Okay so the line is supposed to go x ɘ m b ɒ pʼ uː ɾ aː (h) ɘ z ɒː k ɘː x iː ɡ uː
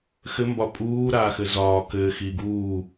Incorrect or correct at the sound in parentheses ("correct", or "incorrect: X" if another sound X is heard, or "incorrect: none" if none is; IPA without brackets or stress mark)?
incorrect: x